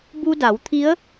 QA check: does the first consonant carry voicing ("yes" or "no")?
yes